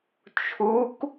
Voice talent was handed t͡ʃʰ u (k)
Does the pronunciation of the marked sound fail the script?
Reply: no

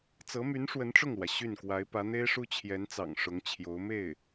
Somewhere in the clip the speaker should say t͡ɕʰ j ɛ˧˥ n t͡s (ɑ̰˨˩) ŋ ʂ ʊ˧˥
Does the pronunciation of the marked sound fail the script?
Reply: no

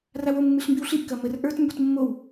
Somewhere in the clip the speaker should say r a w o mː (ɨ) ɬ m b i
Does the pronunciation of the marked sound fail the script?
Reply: no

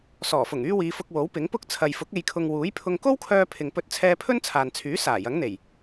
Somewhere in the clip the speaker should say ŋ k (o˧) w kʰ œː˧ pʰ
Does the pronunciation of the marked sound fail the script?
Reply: yes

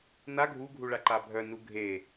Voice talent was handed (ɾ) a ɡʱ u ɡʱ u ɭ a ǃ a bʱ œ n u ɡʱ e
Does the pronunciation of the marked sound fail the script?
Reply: yes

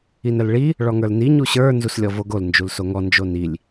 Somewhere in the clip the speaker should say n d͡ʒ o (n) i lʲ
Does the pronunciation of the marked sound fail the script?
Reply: no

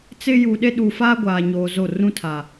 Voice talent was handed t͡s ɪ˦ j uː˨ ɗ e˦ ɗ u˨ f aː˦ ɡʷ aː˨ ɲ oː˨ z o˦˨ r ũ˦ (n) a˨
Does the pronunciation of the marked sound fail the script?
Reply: yes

